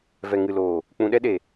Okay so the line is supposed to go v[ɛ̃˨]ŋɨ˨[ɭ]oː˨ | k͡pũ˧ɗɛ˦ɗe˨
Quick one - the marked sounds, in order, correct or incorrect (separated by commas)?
incorrect, incorrect